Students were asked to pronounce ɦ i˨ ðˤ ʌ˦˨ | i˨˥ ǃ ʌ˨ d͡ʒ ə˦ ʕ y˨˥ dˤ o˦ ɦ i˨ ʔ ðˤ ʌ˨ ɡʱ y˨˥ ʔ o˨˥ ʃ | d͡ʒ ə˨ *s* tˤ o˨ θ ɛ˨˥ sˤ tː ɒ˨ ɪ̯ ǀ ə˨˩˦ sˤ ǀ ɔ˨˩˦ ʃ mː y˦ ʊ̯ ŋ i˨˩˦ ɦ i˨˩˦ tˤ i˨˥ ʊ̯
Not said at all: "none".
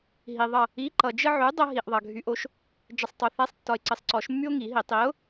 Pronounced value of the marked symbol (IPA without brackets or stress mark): sˤ